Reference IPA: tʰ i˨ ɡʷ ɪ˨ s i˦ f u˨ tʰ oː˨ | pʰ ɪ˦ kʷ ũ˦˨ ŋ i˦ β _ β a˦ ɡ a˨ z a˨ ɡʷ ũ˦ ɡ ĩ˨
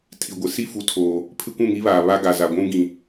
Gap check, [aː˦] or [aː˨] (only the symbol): aː˨